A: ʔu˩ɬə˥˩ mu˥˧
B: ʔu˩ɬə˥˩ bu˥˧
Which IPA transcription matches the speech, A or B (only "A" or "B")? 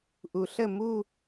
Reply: A